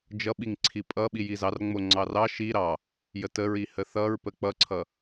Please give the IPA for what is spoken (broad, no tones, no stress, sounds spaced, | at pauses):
d͡ʒ ʌ ɓ i ŋ ǀʰ i pʼ ʌ ɓ i j i z ɑ r ŋ͡m o ŋ͡ǀ ɑ r ɑ ʃ i ɾ ɑ | j ə t ə ɹ i h ə θ ʌ ɹ p ə k͡p ʌ ǀʰ ʌ